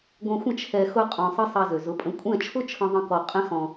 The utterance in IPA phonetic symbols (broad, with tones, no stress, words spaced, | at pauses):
ɡʷɛ̃˧xʷə̃˦˨ t͡ʃʰɛ˧ xʊ˦qʼɔ̃˧ sˤɘ˦sˤɛ˧zø˨ zʊ˨˦pʼə̃˧ kʷʼɛ̃˦˨t͡ʃʰʊ˦t͡ʃʰə̃˧ ðˤə̃˦kɔ˧ qʼɛ̃˦xɔ̃˧